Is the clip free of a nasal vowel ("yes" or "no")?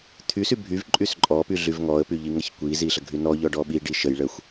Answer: yes